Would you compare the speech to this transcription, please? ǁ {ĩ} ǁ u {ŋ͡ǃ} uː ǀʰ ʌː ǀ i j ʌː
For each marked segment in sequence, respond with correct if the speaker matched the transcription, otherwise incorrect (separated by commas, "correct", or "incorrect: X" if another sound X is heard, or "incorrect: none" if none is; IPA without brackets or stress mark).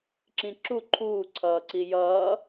correct, incorrect: ǃʰ